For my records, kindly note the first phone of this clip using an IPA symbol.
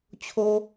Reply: t͡ɕʰ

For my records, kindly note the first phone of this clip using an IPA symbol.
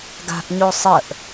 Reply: ɡ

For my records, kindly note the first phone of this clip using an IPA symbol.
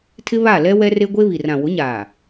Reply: tʰ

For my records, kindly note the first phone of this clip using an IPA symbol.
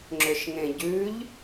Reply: ŋ͡ǁ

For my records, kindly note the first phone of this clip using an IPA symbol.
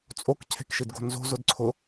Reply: t͡sʼ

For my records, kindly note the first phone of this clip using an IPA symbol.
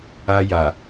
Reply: a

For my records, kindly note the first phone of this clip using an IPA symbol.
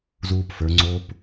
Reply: z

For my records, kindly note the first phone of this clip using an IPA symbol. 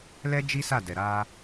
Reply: l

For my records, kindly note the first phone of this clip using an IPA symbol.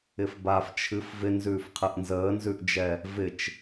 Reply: ɪ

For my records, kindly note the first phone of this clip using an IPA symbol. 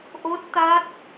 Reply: ʔ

